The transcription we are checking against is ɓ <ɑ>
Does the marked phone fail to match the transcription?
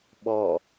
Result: yes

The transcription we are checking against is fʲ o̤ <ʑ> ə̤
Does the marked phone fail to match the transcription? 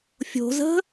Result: yes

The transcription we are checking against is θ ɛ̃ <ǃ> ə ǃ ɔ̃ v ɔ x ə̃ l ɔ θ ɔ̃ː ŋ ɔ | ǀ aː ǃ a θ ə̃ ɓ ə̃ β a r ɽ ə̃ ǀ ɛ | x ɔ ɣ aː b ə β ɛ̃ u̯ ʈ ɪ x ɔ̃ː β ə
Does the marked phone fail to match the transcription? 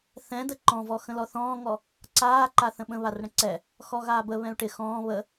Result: yes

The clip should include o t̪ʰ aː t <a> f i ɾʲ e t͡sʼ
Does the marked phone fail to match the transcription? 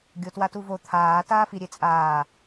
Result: yes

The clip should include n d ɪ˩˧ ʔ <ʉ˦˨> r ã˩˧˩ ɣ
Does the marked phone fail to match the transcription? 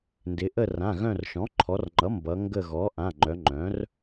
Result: yes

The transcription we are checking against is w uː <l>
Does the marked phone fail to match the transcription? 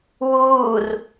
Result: yes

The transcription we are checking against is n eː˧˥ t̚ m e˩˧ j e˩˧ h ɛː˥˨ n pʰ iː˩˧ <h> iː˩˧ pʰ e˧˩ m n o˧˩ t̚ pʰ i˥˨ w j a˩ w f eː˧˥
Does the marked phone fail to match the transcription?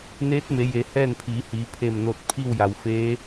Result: no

